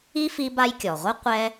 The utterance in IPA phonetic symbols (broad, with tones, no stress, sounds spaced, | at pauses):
i˥ f i˦ b a˦ j kʲ ɔ˩ ʁʷ ɪ˥ qʷ ɛ˦